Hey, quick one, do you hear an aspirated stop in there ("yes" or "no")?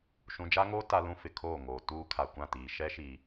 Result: yes